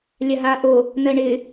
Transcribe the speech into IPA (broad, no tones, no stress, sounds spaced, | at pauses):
lʲ a ɦ aː ʔ o | n ɜ ɳ ɪ